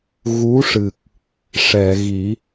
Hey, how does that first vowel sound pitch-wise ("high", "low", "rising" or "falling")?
rising